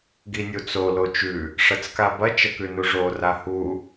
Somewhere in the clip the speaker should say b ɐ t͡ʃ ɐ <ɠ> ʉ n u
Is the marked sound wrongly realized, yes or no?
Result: yes